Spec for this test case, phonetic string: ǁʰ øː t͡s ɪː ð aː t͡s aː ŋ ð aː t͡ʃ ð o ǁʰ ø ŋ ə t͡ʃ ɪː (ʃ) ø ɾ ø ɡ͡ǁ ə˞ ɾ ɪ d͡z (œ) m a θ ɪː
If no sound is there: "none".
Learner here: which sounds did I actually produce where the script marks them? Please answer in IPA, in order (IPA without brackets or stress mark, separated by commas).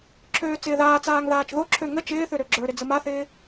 θ, ə